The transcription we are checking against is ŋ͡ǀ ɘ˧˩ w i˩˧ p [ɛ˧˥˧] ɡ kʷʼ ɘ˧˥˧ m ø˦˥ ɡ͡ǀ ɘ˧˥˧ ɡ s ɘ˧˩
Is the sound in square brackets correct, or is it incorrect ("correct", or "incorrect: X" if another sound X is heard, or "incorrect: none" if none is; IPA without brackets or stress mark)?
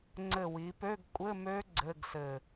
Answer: incorrect: ø˧˥˧